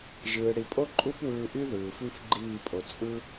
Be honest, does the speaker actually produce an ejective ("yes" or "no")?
yes